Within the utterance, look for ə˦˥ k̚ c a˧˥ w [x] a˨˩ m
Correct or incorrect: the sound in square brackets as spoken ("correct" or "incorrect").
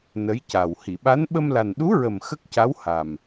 incorrect